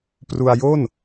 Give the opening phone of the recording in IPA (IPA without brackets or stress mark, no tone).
p